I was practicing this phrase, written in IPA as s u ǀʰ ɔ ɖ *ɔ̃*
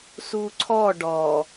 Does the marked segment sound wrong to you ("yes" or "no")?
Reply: yes